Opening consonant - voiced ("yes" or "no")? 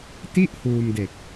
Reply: no